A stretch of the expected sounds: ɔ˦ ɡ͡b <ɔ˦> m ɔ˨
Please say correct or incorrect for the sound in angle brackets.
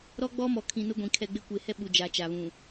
correct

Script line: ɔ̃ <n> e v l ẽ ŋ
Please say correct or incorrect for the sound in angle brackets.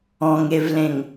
incorrect: ŋ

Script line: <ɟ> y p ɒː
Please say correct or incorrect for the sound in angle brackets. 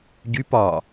correct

